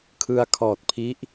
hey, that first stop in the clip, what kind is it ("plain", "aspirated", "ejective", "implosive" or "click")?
aspirated